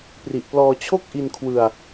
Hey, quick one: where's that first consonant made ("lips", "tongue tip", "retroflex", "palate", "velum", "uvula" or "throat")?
lips